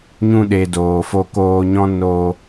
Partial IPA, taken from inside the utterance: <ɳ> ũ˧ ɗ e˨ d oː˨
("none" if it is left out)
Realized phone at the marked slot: ɲ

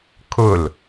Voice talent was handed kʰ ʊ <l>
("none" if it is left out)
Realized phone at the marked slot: l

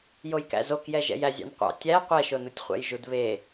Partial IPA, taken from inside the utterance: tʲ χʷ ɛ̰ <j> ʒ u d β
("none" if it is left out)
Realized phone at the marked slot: j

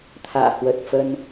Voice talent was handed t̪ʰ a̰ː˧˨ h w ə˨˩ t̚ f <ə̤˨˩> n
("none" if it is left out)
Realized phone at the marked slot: ə˧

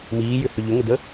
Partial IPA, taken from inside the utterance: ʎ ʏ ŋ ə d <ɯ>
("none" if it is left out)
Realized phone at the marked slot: ə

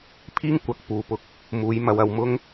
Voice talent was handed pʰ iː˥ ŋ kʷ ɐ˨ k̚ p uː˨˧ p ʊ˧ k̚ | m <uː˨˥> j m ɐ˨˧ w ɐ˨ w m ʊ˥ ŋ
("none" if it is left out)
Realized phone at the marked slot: uː˨˧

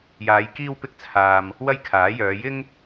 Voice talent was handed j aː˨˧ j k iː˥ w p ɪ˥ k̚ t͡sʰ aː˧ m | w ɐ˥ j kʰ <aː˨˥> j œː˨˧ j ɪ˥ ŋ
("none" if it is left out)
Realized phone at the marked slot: aː˨˥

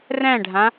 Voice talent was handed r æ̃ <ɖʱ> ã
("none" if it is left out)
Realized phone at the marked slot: ɖʱ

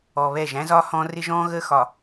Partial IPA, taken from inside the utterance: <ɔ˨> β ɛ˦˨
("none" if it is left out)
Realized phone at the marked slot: ɔ˨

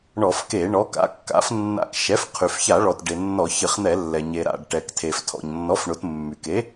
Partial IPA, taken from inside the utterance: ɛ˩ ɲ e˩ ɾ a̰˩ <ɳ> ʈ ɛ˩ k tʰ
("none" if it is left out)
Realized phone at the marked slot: ɖ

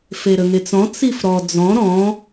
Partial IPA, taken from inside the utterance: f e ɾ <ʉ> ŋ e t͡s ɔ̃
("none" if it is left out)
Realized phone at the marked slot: ə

